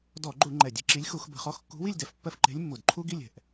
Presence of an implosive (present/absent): absent